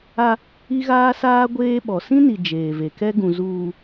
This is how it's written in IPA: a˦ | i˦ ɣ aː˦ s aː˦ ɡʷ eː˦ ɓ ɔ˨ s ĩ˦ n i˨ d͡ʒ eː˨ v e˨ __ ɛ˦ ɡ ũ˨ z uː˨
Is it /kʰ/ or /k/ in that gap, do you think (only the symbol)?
k